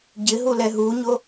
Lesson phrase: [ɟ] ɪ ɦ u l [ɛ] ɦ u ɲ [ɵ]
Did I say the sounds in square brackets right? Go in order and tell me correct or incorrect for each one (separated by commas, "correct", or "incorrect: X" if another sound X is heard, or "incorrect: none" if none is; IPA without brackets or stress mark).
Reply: correct, correct, incorrect: o